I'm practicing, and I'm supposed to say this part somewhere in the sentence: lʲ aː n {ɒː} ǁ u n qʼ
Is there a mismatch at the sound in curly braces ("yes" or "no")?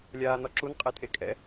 yes